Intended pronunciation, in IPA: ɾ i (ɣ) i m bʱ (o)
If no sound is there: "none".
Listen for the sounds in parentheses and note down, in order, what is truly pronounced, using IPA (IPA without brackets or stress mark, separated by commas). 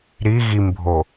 ɣ, o